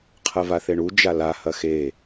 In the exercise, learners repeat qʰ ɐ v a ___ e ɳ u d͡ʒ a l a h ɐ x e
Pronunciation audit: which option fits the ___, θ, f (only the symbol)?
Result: θ